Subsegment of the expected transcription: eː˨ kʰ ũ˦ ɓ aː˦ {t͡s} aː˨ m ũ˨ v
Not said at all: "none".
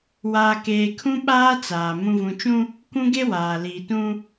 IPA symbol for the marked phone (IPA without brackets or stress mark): t͡s